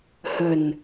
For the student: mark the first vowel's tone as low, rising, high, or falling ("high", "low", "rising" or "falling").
low